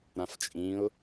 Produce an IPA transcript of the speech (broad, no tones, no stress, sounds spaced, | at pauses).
ɾ ã f t͡ʃʼ ĩ ʊ̯